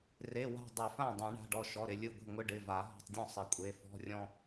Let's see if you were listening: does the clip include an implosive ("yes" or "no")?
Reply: no